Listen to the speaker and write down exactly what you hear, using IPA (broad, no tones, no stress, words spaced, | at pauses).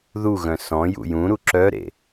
ðuɣœ̃ sɔ̃jṵ jũɾu ǁœɾḛ